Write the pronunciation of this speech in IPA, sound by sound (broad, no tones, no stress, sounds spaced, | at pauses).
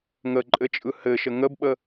ŋ ə ǃʼ ɘ t͡ʃʼ ɯ h ɘ ʃ ə ŋ ə b ɓ ə